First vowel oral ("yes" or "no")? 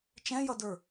no